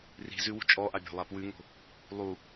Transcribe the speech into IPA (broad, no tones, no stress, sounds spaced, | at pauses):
r i̤ z ʉ w ṳ t͡ʃʼ ɔ ʔ a bʲ ɔ̤ lˠ a p w ʉ ŋ o̤ | lˠ u